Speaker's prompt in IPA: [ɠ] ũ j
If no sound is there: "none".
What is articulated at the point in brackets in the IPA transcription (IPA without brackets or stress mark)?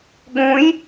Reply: ɠ